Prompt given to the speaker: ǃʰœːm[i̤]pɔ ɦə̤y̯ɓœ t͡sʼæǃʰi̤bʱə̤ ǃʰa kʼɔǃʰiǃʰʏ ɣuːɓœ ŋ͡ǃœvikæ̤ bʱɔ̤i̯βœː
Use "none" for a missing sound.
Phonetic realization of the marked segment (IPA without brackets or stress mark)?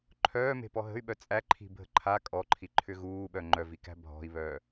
e̤